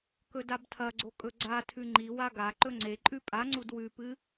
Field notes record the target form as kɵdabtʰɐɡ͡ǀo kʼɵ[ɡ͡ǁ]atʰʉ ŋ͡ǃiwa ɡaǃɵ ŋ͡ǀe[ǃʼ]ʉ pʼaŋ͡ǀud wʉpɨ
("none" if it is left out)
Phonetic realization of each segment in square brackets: ɡ͡ǀ, ǃʼ

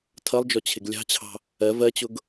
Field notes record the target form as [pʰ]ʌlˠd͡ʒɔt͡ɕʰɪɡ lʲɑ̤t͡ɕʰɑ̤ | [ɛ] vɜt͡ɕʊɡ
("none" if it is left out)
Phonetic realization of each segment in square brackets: tʰ, ɜ

